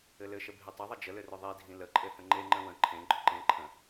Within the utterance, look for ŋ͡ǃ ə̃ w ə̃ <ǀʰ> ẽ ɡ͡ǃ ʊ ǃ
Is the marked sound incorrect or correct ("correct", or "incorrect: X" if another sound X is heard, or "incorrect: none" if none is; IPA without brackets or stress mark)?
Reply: incorrect: ǃʰ